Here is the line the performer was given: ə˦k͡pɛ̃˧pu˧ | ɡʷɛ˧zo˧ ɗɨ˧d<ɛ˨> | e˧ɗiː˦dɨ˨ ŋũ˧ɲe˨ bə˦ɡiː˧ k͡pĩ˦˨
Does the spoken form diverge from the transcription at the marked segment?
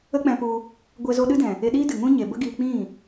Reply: yes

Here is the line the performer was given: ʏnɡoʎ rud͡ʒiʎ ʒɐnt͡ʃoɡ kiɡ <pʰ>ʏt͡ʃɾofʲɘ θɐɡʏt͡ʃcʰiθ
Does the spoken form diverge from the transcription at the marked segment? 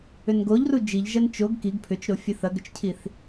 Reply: no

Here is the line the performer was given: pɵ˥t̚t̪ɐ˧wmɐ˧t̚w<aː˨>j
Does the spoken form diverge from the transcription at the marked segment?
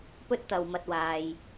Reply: no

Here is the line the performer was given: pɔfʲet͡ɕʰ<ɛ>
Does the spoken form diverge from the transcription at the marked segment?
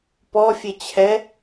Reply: no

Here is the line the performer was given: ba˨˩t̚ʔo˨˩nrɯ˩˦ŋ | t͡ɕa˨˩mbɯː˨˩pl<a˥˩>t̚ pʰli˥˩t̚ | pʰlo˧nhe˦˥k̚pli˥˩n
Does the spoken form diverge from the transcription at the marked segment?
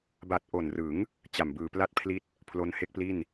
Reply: no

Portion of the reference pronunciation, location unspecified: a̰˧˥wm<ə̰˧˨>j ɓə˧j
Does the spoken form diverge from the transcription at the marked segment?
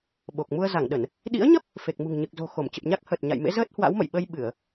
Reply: no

